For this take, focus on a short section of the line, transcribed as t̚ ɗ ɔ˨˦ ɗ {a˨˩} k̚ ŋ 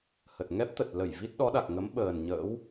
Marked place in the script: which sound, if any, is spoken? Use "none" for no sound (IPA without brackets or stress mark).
a˨˩